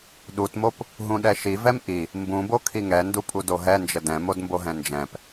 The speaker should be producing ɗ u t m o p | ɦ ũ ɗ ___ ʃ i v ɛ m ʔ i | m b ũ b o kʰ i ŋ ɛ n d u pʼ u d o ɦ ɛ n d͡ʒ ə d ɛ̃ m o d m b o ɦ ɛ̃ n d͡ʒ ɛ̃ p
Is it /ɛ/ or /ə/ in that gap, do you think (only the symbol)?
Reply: ɛ